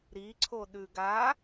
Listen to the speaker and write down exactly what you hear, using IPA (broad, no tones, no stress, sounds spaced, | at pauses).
ɾ i ǀʰ o ɗ ʉ ɡ a